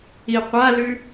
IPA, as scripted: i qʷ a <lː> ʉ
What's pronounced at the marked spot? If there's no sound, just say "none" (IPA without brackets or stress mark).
l